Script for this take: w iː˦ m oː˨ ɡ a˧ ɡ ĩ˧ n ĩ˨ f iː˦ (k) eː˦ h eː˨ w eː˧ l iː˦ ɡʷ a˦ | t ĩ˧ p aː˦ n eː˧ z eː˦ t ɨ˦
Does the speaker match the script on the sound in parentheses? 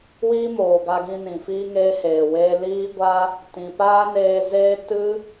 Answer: no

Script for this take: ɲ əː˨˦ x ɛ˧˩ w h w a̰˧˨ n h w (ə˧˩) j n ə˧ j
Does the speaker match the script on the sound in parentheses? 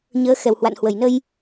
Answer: yes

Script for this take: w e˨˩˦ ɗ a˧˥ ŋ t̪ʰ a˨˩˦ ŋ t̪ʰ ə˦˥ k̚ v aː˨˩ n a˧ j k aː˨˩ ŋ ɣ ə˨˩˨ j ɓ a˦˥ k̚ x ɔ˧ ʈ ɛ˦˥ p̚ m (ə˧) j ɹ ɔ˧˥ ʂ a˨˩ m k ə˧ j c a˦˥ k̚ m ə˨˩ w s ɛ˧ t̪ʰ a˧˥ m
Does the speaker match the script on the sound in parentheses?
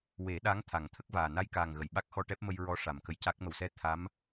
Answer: yes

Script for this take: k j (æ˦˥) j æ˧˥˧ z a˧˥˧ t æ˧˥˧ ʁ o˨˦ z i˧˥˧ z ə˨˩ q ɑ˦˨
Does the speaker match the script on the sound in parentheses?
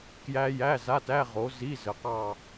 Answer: yes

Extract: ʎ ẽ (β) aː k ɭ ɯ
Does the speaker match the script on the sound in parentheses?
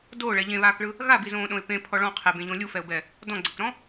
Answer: yes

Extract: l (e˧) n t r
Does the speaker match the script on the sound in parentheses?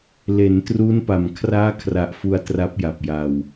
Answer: no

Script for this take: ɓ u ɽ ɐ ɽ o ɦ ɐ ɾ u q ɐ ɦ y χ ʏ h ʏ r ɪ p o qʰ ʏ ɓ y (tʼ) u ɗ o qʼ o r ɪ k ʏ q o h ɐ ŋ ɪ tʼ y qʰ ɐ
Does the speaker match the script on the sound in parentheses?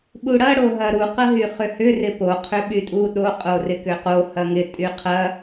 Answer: yes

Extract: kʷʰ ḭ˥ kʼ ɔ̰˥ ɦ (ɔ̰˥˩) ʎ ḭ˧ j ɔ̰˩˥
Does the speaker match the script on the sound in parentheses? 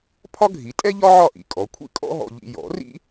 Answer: no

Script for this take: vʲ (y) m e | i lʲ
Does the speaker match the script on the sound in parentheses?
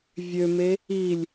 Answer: no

